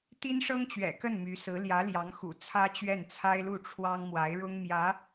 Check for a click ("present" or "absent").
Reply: absent